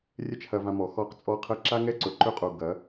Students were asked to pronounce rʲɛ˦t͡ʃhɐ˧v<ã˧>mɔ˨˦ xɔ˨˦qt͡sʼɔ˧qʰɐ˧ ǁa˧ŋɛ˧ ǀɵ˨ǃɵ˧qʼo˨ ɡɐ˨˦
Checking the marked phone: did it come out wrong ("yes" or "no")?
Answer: no